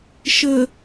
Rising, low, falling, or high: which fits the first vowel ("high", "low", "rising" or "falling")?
low